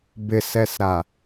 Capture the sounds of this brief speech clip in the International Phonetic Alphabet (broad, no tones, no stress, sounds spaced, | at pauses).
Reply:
b ɪ s ɛ s ɾ a